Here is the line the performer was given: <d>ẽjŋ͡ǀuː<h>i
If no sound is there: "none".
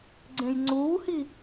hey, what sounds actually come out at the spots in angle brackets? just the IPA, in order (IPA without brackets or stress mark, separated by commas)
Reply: ɡ͡ǀ, h